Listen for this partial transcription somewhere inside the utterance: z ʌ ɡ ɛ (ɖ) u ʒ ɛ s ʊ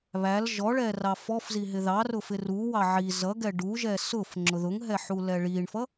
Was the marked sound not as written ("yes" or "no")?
no